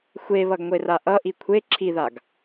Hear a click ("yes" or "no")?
yes